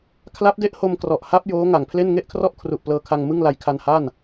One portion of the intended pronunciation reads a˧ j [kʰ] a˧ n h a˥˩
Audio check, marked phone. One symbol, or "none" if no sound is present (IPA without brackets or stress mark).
kʰ